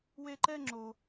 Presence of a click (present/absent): present